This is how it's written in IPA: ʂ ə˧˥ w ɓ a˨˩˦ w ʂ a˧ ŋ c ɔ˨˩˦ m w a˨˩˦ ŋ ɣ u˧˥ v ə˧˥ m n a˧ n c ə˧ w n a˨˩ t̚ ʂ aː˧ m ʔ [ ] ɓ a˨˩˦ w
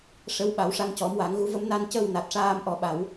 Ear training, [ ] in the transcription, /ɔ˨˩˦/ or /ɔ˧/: ɔ˨˩˦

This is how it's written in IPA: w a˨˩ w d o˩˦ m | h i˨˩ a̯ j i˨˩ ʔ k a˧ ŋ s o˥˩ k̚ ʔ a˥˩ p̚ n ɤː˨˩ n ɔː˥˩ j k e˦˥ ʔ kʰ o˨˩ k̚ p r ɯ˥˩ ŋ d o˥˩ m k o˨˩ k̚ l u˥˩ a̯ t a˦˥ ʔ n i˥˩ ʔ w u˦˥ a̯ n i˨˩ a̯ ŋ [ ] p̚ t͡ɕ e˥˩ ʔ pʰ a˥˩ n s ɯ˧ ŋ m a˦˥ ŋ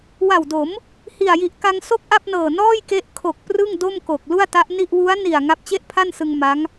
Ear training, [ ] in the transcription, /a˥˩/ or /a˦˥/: a˦˥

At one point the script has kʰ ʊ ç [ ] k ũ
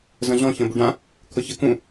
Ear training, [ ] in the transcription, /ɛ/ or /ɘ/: ɘ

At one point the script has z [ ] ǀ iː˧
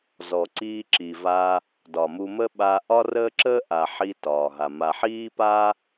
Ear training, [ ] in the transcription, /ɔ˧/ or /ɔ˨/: ɔ˨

